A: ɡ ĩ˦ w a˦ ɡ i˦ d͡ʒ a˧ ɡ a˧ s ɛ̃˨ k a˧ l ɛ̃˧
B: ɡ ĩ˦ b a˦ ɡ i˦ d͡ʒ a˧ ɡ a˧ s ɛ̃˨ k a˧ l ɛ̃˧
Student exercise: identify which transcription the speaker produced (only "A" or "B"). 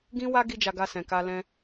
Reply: A